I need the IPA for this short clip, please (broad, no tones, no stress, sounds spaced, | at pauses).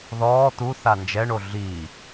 ð ɔː t̪ u θ a n d͡ʒ ɛ ɳ o ɮ i